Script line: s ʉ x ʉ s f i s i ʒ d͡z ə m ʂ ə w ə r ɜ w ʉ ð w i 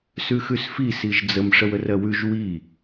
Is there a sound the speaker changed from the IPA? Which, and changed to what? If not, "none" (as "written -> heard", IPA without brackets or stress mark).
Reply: ð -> ʒ